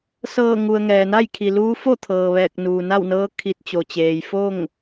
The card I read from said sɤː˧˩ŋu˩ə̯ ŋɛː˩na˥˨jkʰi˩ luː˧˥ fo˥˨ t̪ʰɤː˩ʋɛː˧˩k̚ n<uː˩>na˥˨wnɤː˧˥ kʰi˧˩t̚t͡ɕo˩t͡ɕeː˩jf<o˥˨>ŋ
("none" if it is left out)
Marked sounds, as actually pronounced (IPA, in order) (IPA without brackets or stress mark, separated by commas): uː˩, o˥˨